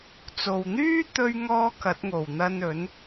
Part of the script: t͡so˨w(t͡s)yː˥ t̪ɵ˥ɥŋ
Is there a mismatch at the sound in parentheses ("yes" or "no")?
yes